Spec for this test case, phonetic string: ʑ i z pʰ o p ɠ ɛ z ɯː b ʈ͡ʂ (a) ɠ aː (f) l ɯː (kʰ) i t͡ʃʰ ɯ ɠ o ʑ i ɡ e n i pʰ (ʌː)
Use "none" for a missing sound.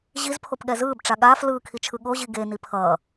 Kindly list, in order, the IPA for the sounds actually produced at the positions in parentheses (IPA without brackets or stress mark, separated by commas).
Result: a, f, kʰ, ʌː